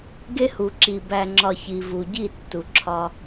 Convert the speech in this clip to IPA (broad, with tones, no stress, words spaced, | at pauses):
ɡe˦hu˨ǁi˨ bæ˨ŋ͡ǁɒ˨ çi˨ vu˨ɟi˦˨tːu˨ ǁʰɒ˦